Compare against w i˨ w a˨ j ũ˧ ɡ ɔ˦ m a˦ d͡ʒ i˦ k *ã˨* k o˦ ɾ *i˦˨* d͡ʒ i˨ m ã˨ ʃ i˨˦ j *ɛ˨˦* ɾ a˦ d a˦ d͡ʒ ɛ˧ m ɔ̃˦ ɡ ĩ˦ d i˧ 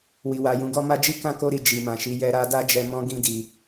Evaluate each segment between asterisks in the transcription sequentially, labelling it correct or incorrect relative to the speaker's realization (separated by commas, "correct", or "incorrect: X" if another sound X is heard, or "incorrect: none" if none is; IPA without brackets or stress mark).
incorrect: ã˦, correct, incorrect: ɛ˧